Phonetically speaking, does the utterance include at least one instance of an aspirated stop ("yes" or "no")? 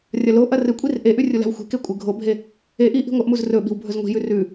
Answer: no